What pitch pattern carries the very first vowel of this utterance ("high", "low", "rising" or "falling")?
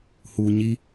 low